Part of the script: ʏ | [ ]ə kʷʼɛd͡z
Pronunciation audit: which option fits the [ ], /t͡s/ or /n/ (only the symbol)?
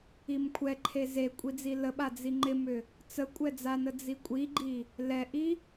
t͡s